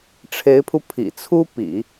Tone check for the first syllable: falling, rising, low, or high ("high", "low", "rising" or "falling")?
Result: rising